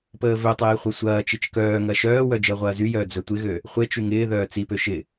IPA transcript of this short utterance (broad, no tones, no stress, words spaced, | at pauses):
pəːvøtˤeː χʷɐsʷɐːt͡ʃit͡ʃ kœːŋɐ ʃœːwœ d͡ʒəːʁʷɐːzyjœː d͡zœtʷɪɣø | χʷet͡ʃy ŋɪː ðœːt͡sipø ʃɪ